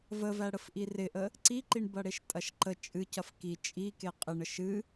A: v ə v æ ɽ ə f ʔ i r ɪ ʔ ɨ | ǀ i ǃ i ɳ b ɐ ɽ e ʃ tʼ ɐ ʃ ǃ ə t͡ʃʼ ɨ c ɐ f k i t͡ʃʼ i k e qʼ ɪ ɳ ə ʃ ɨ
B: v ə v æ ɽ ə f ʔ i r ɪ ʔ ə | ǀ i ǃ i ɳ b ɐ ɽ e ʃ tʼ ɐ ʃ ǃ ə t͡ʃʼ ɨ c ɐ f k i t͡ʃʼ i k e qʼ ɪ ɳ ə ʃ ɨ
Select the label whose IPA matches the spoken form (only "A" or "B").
B